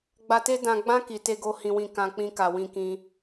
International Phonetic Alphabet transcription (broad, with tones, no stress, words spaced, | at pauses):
ɡ͡ba˧te˦ dã˧ɡ͡bã˦ ki˧te˦ɡo˦ hĩ˦wĩ˦˨ kã˧ k͡pĩ˦ka˧wĩ˦kĩ˦